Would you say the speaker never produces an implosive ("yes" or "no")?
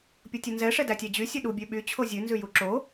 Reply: no